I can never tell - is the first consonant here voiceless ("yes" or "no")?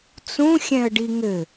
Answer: yes